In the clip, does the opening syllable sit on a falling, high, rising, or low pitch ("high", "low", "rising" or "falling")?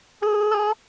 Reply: high